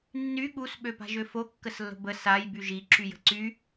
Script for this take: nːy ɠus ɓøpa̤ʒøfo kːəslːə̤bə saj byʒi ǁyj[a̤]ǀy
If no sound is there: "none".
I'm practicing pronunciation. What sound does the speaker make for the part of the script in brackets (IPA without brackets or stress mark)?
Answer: ə̤